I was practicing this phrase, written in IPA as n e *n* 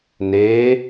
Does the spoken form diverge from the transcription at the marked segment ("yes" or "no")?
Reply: yes